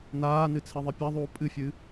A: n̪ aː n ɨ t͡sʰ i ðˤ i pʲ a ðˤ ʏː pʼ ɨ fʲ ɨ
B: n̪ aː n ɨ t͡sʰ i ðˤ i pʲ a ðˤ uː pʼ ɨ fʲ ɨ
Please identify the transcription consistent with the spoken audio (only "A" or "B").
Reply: B